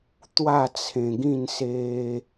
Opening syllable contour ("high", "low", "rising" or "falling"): falling